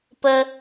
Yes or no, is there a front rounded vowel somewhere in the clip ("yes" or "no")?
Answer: no